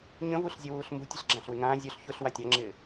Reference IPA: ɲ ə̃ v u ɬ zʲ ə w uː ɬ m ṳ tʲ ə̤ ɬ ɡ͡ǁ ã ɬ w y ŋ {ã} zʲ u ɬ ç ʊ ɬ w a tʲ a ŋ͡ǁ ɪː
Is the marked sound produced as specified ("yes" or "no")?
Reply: no